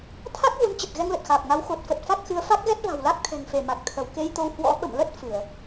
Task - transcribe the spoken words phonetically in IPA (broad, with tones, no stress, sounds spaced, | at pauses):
t̪ʰ a˦˥ k̚ ɣ u˨˦ n t͡ɕ ə˨˩ t̚ ɣ ɛ˧ ŋ l ə˨˩ t̚ x aː˨˩ p̚ ŋ a˨˦ w x o˨˩ t̚ f ə˨˩ t̚ f a˦˥ k̚ x ɨ˨˦ ə̯ f a˦˥ k̚ ɣ ɛ˦˥ t̚ v a̤˨˩ w l a˦˥ k̚ t̪ʰ ɛ̤˨˩ ŋ f e˧˩ m a˨˩ k̚ t̪ʰ ə˧˩ w k e˧ j t̪ o˧ w h w ɔ̰˧˥ ɓ ə̰˧˨ m l ə˦˥ t̚ f ɨ˧˩˨ ə̯